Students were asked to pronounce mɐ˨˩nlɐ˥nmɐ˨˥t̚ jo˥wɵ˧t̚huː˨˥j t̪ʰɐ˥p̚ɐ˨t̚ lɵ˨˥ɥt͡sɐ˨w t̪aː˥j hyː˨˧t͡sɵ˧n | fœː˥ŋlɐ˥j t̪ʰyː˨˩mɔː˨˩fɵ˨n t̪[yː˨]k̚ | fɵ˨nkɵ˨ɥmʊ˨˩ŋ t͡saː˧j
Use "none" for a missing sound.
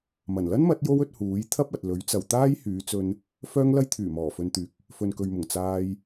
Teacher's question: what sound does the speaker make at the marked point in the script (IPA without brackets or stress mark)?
yː˨